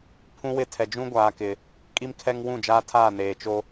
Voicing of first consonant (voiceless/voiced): voiceless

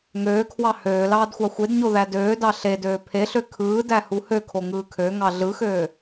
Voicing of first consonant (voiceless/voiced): voiced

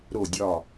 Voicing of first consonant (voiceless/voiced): voiced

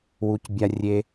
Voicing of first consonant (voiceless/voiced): voiced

